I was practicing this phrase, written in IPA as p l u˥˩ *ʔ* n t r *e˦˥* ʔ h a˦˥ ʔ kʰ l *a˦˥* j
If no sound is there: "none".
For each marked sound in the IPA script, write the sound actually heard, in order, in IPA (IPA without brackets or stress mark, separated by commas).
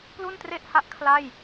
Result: none, e˥˩, a˥˩